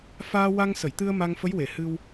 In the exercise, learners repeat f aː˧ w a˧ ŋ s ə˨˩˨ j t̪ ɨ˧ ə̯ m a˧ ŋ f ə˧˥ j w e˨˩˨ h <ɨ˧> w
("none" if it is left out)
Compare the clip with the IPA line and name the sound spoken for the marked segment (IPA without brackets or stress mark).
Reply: ɨ˧